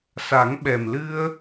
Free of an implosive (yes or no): no